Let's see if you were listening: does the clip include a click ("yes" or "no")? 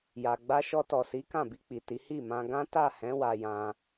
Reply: no